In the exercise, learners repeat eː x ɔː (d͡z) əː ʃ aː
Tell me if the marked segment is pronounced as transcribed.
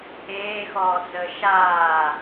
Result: yes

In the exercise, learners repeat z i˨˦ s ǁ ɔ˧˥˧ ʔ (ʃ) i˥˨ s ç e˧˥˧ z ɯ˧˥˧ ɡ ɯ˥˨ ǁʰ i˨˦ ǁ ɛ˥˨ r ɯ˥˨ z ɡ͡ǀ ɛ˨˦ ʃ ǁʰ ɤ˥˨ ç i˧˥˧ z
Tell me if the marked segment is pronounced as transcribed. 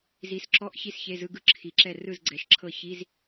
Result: no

